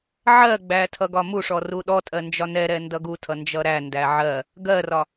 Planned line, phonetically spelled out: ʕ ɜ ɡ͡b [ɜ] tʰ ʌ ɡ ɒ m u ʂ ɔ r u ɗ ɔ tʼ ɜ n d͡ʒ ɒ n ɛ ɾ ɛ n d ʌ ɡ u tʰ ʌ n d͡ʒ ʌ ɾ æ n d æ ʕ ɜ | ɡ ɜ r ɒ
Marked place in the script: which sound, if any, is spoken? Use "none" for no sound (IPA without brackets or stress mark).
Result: æ